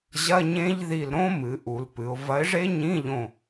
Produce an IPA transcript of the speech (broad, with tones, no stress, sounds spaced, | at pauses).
ʑ ɐ˧˥˧ ɲ ẽ˦˥ ʎ ð i˧˩ l ɾ õ˦˥ m ɨ˩˧ ʔ u˩˧ l p ɨ˩˧ ʊ̯ v ɐ˨˥ ɪ̯ ʐ e˦˥ ɲ ĩ˧˥˧ ʎ õ˧˩